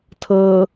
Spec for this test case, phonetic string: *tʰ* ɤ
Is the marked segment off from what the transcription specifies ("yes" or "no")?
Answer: no